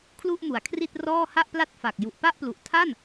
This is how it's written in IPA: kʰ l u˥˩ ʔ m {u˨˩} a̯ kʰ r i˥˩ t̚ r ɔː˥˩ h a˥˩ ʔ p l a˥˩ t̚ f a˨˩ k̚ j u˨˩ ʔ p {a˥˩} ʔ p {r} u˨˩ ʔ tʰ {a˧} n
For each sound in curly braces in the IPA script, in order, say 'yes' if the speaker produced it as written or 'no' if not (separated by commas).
no, yes, no, no